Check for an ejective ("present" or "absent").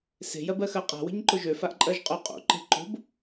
present